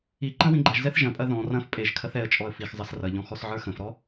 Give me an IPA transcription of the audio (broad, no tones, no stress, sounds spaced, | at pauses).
i ǃ ɐ̃ w ĩ ɡ͡ǃ ɐ ʒ z ɛ θ ʒ ɐ̃ pʼ ɐ ð ɔ̃ r ɐ̃ f pʼ e ʒ kʰ ɐ θ ɛ ə̯ t͡ʃʼ ɔ ə̯ f i x zˤ ɐ s r ɐ ʎ ɔ̃ x ɔ s ʕ ə˞ x ə̃ f ɾ ɔ